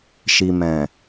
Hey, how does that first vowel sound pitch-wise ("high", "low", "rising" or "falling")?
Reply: low